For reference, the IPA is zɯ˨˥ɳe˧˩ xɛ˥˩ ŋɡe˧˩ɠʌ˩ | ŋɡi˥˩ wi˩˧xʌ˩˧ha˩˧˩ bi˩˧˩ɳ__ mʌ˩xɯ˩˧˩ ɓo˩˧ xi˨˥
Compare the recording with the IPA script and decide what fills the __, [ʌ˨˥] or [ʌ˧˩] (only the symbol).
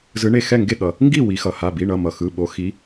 ʌ˧˩